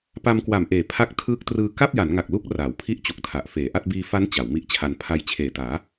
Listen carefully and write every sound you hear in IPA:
p a˧ m k w a˨˩ m ʔ eː˨˩ pʰ a˦˥ k̚ tʰ ɯː˦˥ k̚ t r ɯː˧ k a˥˩ p̚ j a˩˦ n ŋ a˨˩ k̚ l u˦˥ k̚ r aː˩˦ w pʰ i˥˩ ʔ t͡ɕ u˨˩ k̚ tʰ a˨˩ ʔ f eː˩˦ ʔ a˥˩ t̚ b iː˧ f a˦˥ n t͡ɕ a˩˦ w m i˥˩ ʔ t͡ɕʰ a˧ n pʰ a˧ j t͡ɕʰ eː˨˩ t aː˩˦

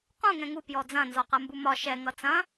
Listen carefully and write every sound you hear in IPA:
q ũ ŋ ɛ̃ ŋ u p j ɔ d͡z ɐ̃ n z ɔ q ɜ m b u m ɒ ʃ ɛ ŋ ʌ t͡s ɐ̃

